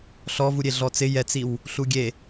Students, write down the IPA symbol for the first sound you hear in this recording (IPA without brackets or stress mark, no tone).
ɬ